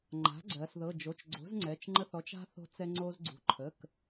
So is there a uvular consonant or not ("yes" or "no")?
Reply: no